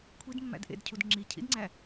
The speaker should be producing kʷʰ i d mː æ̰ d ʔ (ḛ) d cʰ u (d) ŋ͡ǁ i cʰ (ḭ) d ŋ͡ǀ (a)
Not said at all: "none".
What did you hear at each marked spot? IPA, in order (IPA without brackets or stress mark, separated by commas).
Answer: ḛ, d, ḭ, æ